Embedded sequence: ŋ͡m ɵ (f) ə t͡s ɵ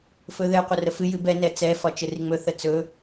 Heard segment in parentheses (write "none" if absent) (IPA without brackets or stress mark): θ